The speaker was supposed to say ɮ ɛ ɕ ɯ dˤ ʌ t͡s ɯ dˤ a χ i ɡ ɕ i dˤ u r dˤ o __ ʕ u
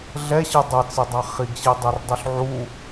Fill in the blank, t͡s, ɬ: ɬ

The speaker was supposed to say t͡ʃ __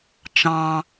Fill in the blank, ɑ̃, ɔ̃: ɑ̃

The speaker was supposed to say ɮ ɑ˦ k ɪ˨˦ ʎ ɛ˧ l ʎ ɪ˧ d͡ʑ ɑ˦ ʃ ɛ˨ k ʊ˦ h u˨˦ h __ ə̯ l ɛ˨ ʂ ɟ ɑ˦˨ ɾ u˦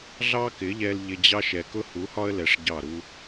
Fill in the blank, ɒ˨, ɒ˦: ɒ˦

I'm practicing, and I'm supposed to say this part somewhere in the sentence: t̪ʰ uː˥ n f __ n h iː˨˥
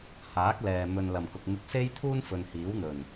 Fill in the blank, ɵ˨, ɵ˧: ɵ˨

